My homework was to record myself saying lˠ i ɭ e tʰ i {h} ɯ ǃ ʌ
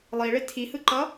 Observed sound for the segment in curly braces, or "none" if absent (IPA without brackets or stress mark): h